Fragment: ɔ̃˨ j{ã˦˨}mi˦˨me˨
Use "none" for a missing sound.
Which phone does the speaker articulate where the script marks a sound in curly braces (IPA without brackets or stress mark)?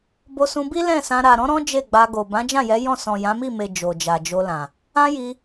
ã˨˦